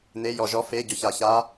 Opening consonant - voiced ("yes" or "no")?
yes